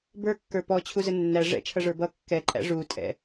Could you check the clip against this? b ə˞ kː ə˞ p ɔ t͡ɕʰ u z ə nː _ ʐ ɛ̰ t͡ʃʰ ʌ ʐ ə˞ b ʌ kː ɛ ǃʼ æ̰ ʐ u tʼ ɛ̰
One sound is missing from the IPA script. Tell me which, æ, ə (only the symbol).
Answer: æ